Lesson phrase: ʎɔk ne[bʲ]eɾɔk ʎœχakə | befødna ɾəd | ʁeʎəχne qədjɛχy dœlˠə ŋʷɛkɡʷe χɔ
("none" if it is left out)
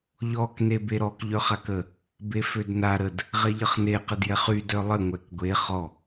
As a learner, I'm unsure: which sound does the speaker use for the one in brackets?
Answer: b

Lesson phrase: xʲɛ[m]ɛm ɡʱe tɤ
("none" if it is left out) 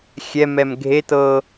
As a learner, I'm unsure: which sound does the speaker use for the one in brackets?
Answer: m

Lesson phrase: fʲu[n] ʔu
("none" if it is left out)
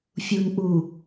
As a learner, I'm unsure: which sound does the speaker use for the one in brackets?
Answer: n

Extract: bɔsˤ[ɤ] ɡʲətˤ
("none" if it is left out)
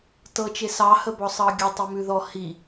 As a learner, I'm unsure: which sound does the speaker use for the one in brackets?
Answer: ɤ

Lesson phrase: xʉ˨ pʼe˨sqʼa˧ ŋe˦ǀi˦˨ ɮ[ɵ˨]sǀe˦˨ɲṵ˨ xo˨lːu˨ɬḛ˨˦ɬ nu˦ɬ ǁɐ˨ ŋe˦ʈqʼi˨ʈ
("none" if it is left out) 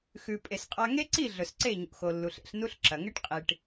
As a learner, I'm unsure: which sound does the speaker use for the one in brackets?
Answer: ɵ˨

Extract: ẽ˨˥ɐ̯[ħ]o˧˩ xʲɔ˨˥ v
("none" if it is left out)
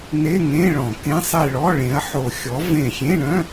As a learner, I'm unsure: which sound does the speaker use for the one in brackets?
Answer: ħ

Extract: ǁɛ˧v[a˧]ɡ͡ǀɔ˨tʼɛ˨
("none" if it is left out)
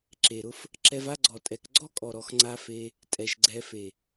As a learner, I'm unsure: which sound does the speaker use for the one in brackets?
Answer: a˦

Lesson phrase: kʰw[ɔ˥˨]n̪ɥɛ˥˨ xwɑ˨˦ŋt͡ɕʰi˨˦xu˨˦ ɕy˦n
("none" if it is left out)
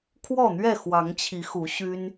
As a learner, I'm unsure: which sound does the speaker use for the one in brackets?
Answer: ɔ˥˨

